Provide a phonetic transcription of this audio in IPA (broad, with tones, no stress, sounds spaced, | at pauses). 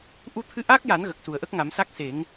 ʔ u˧ t̪ʰ ɨ˧ ʔ aː˦˥ k̚ j a˨˩˦ n ɣ ə˨˩ k̚ s u˨˩ ə̯ ʔ ə˦˥ k̚ ŋ a˨˩˦ m s a˦˥ k̚ s e˨˩˦ ŋ